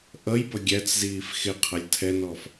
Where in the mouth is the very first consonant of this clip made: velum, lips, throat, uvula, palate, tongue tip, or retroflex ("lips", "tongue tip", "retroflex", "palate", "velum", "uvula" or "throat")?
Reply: throat